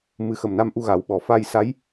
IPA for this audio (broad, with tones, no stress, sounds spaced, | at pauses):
m ɨ˨˩˦ x ə˨˩ m n a˧ m ʔ u˧ ɣ a˨˩˦ w ɓ ɔ˨˩ f a˧ j s a˧˥ j